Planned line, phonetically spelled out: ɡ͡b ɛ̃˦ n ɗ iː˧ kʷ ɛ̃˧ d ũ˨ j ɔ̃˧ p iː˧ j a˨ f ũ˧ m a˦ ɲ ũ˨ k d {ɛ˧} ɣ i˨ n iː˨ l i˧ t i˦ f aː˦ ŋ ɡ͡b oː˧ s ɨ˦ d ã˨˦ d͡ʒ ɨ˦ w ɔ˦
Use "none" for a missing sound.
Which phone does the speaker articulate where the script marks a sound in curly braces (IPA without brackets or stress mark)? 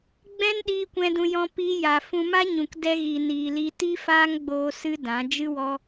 ɛ˧